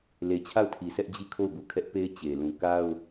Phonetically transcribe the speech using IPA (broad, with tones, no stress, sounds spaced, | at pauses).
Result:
l e˨ t͡ɕʰ a˦˨ ʊ̯ tʰ i˨ sʰ ɛ˦ ʔ d͡ʑ i˦˨ kʰ o˦˨ ʊ̯ b u˨ kʰ ɛ˦ ʔ p e˦ ɪ̯ t͡ɕ e˨ l ũ˨ k a˦ ʊ̯